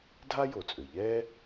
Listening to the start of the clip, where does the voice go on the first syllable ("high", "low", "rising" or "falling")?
high